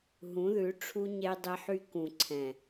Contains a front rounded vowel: yes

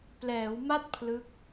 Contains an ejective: no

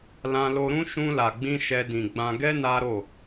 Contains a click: no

